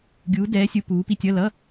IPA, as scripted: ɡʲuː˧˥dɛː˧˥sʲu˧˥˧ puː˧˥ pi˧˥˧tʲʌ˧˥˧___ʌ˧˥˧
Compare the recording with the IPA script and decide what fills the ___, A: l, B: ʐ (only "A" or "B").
A